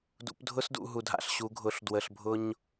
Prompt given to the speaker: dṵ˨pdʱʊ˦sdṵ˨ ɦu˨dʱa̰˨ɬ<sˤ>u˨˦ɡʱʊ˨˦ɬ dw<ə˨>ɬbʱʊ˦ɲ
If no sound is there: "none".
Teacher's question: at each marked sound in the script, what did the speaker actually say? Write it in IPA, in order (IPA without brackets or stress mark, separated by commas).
ɕ, ə˨